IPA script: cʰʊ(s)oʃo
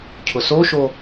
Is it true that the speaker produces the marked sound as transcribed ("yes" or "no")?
yes